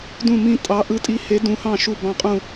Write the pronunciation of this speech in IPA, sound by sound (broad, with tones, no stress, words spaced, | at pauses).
dũ˥˩mĩ˥˩ tʼɑ˨˥ ʔɯ˨˥tʼi˨˥he˨˥ dũ˨˥hɑ̃˥˩ ʃu˥˩bɑ̃˥˩qʼũ˥˩